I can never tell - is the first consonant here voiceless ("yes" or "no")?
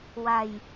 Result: no